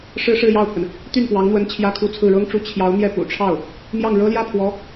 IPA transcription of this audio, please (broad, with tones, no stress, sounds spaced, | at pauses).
ʂ ɻ̩˥ ʂ ɻ̩˥˧ j ɑ˥˩ ʊ̯ pʰ ə˩ n | t̪ y˥˩ n p w ɑ˧˥ ŋ n̪ w ə˧˥ n t͡ɕʰ j ä˥˧ kʰ u˥˧ t͡sʰ ɹ̩˥˩ ɻ ɤ˥ ŋ ʈ͡ʂ u˧˥ t͡ɕʰ j ɑ˧˥ ʊ̯ n̪ j ɛ˥˩ p ṵ˨˩ ʈ͡ʂʰ ɑ˥˩ ʊ̯ | m j ɑ˥˩ ŋ ɻ ɤ˥ l j ä˥˩ pʰ w ɔ˧˥